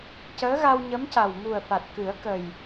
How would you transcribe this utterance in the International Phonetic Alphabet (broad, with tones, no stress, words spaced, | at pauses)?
cəː˧˥ɣa˧wɲə˧˥mca˨˩w mu˨˩ə̯fa˨˩t̚kɨ˨˩˦ə̯kə˨˩j